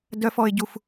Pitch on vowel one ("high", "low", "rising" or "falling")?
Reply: high